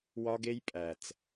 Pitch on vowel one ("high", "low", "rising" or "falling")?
high